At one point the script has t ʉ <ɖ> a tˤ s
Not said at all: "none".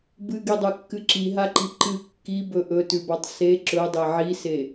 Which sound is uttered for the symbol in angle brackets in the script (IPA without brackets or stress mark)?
b